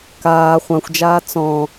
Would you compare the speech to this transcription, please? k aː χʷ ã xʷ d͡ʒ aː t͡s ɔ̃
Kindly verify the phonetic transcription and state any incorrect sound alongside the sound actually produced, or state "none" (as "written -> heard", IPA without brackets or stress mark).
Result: none